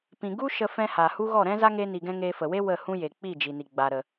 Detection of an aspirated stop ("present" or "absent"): absent